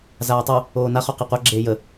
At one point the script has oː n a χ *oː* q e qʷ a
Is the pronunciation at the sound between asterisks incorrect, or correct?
incorrect